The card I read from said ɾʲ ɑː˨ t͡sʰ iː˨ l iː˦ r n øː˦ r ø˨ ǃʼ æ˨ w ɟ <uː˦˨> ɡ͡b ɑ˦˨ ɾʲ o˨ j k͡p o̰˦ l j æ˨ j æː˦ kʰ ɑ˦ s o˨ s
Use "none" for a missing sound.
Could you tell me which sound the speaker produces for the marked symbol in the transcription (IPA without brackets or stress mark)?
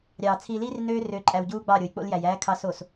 uː˦